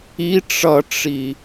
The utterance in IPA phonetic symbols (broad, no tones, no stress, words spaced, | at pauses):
i ʈ͡ʂʌʈ͡ʂi